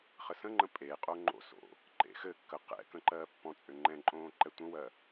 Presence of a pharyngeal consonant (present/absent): absent